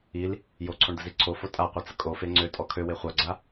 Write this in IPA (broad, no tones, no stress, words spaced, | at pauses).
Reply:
il | joǀʰoɳd̪əzi ǀʰofo tʼaqʷat͡sə kʼofe ŋ͡ǀøtʼɔ kʰøwe χʷaɡ͡ǀa